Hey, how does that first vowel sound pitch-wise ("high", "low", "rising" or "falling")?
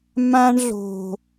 high